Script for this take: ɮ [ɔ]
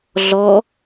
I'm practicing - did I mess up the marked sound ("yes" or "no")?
no